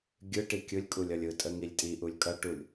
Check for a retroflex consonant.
present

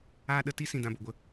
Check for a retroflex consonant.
absent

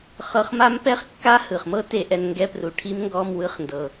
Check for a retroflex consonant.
present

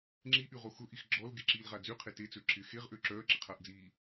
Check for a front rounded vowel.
present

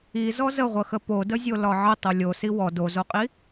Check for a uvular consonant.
present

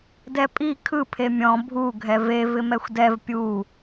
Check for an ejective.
present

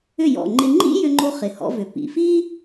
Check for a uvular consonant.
present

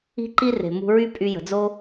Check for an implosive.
absent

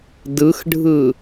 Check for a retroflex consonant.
present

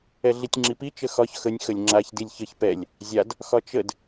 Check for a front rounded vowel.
absent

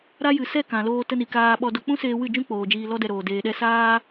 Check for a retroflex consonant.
absent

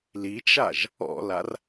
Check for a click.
absent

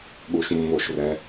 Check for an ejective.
absent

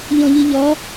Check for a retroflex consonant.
absent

